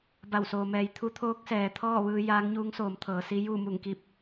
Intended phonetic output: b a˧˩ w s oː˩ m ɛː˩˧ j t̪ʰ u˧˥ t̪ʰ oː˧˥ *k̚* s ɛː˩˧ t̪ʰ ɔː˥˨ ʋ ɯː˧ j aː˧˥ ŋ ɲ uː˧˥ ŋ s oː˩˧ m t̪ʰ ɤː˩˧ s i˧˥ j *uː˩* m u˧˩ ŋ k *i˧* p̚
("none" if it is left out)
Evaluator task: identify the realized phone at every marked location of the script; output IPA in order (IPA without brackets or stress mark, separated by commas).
k̚, uː˥˨, i˧